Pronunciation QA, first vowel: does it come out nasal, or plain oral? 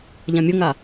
nasal